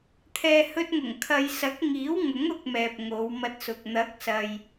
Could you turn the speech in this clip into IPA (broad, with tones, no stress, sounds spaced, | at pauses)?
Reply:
t̪ʰ ɛː˨ h ɵ˧ t̚ ŋ ʊ˨˩ ŋ kʰ ɐ˨ j s ɐ˨˥ k̚ ŋ iː˨˥ w ŋ ʊ˨˥ ŋ ʊ˨ k̚ m ɛː˨ p̚ ŋ o˨˧ w m ɐ˧ t̚ s ʊ˨ k̚ n̪ ɐ˨˥ k̚ s ɐ˨ j